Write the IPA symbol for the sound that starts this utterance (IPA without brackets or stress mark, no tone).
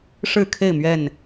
ʂ